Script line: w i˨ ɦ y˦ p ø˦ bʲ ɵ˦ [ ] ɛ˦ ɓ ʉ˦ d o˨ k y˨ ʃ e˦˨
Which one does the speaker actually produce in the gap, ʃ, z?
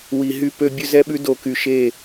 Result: z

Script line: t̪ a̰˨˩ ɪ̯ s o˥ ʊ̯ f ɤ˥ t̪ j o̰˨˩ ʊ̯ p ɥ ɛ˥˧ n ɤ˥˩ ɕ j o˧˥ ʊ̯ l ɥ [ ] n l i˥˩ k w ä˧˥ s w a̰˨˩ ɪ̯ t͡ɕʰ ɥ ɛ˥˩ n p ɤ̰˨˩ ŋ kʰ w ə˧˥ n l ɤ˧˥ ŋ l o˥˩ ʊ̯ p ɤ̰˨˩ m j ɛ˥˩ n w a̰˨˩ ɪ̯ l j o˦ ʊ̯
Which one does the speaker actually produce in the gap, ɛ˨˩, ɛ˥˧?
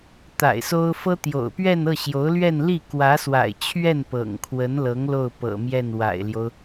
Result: ɛ˥˧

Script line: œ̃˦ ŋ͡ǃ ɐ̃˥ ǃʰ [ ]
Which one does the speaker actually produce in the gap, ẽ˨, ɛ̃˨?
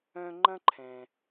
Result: ɛ̃˨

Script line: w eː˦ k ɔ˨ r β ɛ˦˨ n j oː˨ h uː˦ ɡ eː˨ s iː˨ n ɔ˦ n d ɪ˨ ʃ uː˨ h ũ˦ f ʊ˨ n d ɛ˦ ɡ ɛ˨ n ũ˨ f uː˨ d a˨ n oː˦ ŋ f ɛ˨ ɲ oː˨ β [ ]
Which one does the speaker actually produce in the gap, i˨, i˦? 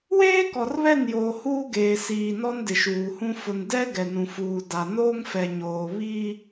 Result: i˦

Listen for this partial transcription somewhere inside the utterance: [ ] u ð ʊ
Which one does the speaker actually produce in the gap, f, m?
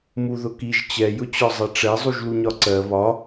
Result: m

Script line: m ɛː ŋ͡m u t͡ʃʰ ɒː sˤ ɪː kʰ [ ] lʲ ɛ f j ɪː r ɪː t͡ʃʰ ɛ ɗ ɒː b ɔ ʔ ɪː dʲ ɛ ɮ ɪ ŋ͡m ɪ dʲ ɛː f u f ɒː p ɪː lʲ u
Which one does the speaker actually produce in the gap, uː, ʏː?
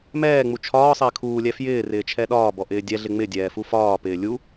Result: uː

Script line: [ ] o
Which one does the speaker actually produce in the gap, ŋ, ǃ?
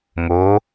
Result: ŋ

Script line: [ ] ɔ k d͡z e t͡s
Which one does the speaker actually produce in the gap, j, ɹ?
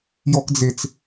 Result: j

